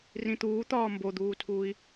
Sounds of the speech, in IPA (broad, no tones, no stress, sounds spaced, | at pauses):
r ĩ t̪ uː t̪ ɒː m b o d̪ uː tʰ uː i̯